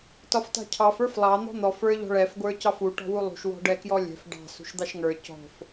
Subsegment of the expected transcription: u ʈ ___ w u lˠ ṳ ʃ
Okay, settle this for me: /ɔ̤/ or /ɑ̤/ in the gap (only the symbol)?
ɔ̤